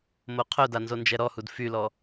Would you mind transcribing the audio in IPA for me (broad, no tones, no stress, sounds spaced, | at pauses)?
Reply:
m o qʰ œ d a n z o n d͡ʒ ɛ ɾ ɔ h u d f y l ɔ